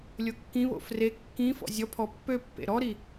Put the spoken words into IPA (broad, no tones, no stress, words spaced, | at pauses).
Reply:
lʲokːĩβo̰ fre kːĩfɔ̰ zʲɔpʰɔ pːøpːḛ ɾɔɾi